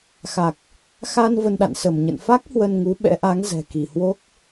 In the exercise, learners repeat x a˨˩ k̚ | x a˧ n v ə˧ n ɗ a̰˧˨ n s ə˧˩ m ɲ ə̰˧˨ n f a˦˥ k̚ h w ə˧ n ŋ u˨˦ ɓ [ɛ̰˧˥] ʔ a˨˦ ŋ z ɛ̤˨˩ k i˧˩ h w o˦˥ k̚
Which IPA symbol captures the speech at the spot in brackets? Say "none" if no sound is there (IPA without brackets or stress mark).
ɛ̰˧˥